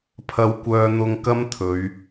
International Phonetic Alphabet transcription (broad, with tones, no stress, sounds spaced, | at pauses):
pʰ ɐ˧ w kʷ œː˧ n̪ ʊ˧ ŋ k ɐ˥ m t̪ʰ ɵ˨˧ ɥ